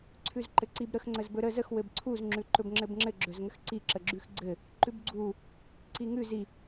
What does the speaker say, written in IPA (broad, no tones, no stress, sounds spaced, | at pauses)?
ǀʰ ʉ z ǃ ɘ ǀ i b ɾ ə x ŋ͡ǀ ə z b ɵ ɾ ə z ə x w ɘ b ǀʰ u z ŋ͡ǁ ʉ ǃ ɵ b ŋ͡ǁ ɘ b ŋ͡ǁ ɘ ɡ͡ǁ ɵ z ŋ ə x ǀ i ǁ ə ɡ͡ǁ ʉ x ɡ͡ǀ ɘ | ǃ ʉ b ɡ͡ǀ u | ǀ i ŋ ʉ z i